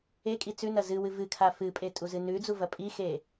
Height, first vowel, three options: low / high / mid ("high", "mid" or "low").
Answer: mid